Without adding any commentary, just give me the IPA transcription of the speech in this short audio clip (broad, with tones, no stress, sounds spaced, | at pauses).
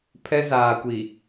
pʰ ɛ˦ z aː˨ kʷ i˨